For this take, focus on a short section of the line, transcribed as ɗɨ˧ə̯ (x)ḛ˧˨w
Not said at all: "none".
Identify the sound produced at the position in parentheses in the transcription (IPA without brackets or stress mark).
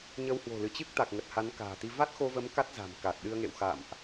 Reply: ŋ